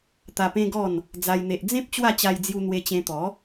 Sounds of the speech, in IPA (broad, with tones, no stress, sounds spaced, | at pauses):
t̪ a˧ p ẽ˦ ɡ ɔ˥˧ n | d͡z a˦ j n̪ e˦ ʔ d͡z ẽ˦ p̚ t͡ɕ w a˥˧ t͡ɕ a˧ j d͡z j u˧ n̪ w e˧ t͡ɕ ẽ˧ t̪ ɔ˨˦